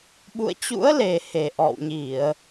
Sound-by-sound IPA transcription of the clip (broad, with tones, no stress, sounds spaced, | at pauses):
ɓ ṵ˧˨ ə̯ t͡ɕ ṵ˧˥ ə̯ l e˨˩ h e˨˩ ʔ ɔ̰˧˨ w ɲ i˧˩˨ ə̯